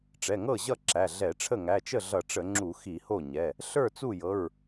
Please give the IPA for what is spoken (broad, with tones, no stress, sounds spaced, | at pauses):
ʈ͡ʂ ɛ˩˧˩ ŋ ɤ˥˩ ʑ ʌ˥˩ ǁ æ˩˧˩ ɮ ɛ˧˩˧ ʈ͡ʂʰ ə˥˩ ŋ æ˩˧˩ t͡ʃ ə˥˩ ɮ ʌ˧˩˧ ʈ͡ʂ ə˧˩˧ ŋ͡ǁ u˧˩˧ x i˧˩˧ h o˥˩ ɲ ɛ˩˧˩ | ɬ ə˞˥˩ t͡s u˥˩ j ɤ˩˧˩ ɹ